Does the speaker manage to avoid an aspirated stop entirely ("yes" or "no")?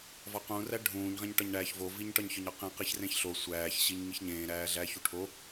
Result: no